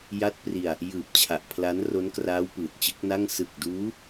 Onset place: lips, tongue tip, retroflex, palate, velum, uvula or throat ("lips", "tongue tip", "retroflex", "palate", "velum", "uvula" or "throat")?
palate